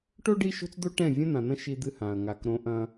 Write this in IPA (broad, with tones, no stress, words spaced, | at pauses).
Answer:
ʈo˦ ɖi˦ʃo̤˦t͡sd̪o˦ ʈɛ̃˦˨ vʲɐ̃˦n̪ã˨n̪ɐ̃˦ ʃi˦d̪ɨ˦hã˨ɐ̯ ŋa˨kɾõ˦ ʔɐ̃˦